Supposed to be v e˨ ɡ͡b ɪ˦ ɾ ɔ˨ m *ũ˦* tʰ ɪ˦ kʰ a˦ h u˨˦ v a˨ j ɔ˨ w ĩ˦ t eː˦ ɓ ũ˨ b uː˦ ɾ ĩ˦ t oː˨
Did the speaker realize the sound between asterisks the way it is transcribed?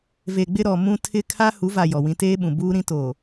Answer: yes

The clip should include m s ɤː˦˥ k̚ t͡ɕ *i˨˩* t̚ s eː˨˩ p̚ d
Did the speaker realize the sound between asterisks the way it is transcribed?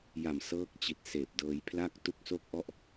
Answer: yes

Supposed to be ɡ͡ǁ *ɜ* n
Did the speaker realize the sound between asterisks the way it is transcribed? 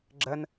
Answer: yes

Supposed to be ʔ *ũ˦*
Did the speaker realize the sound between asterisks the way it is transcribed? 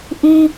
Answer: yes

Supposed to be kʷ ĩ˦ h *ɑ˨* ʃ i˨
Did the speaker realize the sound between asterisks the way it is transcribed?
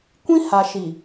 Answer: no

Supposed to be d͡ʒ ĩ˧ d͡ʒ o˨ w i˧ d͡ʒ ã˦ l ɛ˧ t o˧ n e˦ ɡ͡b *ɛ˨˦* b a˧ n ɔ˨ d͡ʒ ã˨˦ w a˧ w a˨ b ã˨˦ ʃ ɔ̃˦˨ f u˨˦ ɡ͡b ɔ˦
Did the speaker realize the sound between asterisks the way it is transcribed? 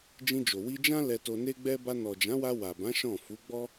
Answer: no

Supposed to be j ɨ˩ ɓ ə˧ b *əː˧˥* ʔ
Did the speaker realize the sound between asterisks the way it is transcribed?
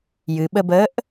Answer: yes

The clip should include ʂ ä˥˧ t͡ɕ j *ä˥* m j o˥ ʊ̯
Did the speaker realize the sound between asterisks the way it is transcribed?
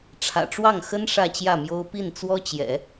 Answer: no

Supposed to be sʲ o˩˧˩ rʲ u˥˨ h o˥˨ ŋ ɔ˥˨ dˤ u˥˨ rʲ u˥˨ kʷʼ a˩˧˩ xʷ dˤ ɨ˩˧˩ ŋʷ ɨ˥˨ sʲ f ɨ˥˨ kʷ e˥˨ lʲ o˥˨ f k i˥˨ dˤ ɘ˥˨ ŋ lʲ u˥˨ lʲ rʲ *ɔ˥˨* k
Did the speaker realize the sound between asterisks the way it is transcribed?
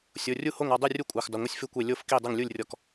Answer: yes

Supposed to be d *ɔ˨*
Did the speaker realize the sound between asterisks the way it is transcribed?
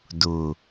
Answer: no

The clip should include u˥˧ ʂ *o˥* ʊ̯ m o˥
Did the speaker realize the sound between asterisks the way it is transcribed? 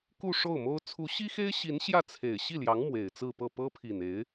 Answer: no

